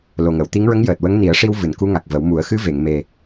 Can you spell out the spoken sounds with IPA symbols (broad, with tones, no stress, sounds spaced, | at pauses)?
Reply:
l o˨˩ ŋ ə˨˩˨ w t̪ i˧˥ ŋ ɹ ə˧˥ ŋ j əː˨˩ t̚ w ə˧˥ ŋ n i˨˩˦ ə̯ ʂ i˧ w v ɨ˨˩˨ n k u˧˥ ŋ a˨˩ k̚ v ə˨˩˦ w m u˨˩˦ ə̯ x ɨ˧˥ v e˨˩˨ ŋ m e˨˩